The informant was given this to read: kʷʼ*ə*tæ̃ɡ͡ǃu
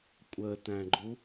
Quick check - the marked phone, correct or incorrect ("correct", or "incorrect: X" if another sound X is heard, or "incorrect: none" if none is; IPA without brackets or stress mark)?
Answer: correct